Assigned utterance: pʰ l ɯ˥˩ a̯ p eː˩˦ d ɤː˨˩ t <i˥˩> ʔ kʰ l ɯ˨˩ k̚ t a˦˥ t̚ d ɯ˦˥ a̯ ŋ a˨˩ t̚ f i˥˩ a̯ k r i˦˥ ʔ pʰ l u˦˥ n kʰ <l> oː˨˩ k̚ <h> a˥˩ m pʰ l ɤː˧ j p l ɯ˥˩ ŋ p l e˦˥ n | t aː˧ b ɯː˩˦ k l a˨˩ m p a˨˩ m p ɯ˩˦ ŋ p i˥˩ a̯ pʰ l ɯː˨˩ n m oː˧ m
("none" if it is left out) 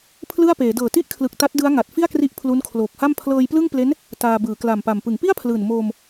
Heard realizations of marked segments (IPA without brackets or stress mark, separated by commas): i˦˥, l, h